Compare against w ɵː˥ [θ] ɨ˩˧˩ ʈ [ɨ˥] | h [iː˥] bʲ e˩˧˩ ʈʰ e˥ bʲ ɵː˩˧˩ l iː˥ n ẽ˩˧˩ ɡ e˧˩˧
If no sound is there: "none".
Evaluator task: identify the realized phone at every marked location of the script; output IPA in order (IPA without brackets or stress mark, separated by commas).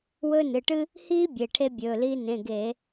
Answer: n, ɨ˥, iː˥